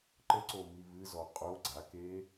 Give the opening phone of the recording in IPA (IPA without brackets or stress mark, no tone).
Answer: ǃ